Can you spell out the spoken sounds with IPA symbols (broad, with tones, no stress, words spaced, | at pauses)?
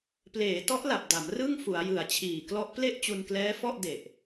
pleː˩˦tɔ˦˥ʔla˨˩p̚ da˩˦mrɯ˥˩ŋ fu˩˦a̯jɯ˨˩a̯t͡ɕʰiː˨˩klɔ˦˥ʔ ple˥˩ʔ t͡ɕu˧nklɛː˦˥fɔ˥˩ʔ de˨˩ʔ